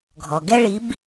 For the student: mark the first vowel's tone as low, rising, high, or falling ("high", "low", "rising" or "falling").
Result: low